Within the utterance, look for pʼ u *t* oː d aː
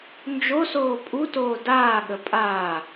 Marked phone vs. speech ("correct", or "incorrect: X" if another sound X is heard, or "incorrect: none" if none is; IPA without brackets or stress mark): correct